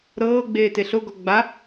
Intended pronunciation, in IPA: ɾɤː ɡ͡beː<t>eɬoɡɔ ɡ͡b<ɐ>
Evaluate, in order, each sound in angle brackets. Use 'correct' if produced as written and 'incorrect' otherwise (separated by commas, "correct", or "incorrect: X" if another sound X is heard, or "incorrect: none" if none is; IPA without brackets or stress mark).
correct, incorrect: a